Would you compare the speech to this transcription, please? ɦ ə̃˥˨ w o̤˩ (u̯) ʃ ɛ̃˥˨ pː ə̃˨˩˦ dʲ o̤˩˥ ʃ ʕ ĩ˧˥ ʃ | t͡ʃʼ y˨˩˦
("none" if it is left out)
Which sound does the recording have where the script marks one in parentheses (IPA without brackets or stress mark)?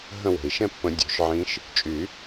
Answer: i̯